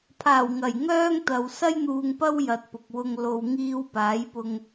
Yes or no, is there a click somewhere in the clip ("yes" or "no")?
no